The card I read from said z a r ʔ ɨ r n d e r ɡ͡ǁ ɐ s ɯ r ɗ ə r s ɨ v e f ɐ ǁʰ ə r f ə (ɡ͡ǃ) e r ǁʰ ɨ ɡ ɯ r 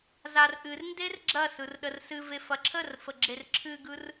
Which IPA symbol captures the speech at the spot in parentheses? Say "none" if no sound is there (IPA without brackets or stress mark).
ɡ͡ǁ